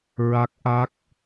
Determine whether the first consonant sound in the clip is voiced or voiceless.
voiced